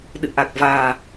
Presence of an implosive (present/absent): present